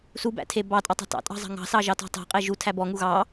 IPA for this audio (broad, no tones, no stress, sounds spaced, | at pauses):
s u b æ̰ tʰ e b ɑ tʼ ɑ tˤ ɑ̤ t ɑ̰ tʼ ɑ̤ zˤ ɑ̤ ŋ ɑ̤ s ɑ ʒ ɑ t ɔ̤ tˤ æ̤ qʼ e ʒ u tʰ æ b ɔ ŋ u ɣ ɑ